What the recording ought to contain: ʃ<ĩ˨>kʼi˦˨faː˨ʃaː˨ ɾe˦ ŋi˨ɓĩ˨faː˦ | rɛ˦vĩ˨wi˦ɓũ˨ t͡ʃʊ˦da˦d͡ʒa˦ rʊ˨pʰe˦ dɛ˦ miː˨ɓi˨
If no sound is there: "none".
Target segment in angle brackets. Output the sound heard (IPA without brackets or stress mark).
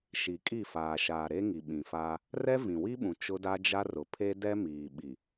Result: i˨